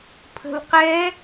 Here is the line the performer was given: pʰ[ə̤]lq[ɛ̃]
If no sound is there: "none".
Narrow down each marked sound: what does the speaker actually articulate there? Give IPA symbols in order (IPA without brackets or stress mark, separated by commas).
ə̤, ɛ